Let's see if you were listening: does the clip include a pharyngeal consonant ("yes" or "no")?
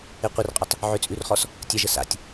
yes